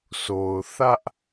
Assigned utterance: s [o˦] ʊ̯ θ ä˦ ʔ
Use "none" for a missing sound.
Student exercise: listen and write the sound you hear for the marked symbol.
o˨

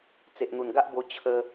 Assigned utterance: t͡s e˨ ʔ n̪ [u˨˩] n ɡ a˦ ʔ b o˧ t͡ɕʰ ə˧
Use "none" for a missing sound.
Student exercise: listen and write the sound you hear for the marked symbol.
u˨˩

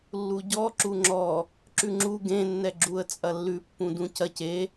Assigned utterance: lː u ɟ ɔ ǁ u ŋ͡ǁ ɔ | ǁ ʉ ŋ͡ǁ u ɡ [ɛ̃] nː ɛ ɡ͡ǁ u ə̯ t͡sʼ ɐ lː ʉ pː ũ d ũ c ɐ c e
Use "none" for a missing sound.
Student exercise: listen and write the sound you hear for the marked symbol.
ẽ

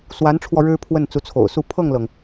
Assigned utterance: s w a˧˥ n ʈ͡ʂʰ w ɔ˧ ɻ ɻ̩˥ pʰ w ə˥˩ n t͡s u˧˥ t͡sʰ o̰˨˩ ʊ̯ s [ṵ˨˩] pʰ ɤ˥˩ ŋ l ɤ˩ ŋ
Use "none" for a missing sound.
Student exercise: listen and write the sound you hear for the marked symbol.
u˥˧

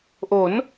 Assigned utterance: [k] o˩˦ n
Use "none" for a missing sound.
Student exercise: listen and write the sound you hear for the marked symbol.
ʔ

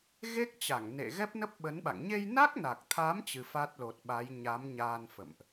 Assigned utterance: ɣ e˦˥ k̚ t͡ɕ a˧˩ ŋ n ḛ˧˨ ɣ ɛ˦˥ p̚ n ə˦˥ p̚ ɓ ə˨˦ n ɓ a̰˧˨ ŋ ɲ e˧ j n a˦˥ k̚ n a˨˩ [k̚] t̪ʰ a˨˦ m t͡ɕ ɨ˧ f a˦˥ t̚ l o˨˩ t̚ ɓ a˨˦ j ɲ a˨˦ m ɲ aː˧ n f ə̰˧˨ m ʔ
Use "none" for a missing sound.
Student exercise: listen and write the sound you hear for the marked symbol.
k̚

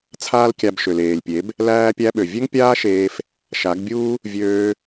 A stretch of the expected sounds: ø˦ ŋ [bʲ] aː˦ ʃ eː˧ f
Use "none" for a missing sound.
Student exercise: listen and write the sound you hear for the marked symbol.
pʲ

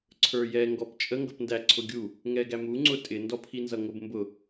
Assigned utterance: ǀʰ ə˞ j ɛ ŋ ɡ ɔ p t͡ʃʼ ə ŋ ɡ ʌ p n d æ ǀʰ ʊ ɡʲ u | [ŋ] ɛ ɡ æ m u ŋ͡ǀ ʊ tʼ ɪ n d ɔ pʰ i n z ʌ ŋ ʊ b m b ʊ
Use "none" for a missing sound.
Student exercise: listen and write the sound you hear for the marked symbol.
ŋ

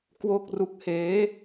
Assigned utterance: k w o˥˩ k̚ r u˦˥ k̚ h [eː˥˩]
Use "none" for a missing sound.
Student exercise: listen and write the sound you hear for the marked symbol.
eː˦˥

